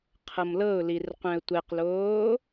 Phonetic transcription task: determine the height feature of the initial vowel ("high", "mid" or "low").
mid